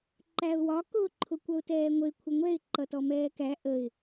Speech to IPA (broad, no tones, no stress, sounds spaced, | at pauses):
ǃ æ ʊ̯ w ɒ k ʊː ǃʰ ʊ kʷ ʌ ʊ̯ t ɛː ŋʷ ə ɪ̯ kʷʰ ə ŋʷ ɛ ɪ̯ ǃ ʌ t ɔ m ɛː k æ ʔ ə ɪ̯